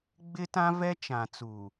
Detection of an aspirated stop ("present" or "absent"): absent